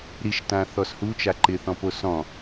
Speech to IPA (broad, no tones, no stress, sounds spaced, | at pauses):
ɾ i ʃ t ã θ ɔ s h u t͡ʃ a ǃ ɪ θ ɔ̃ p o s ɔ̃